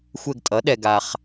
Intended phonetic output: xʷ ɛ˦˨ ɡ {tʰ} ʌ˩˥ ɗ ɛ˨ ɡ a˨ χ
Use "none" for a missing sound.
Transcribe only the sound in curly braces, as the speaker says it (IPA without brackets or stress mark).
tʼ